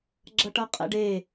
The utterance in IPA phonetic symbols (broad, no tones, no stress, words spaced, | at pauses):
ɡ͡ǁʌʈʌqʼɛ̰ɖe